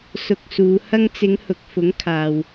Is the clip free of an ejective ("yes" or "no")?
yes